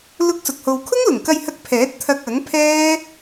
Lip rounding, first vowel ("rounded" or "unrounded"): rounded